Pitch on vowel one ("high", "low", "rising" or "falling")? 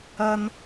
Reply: high